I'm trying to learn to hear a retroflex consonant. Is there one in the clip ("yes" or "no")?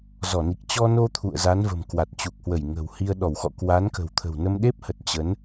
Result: no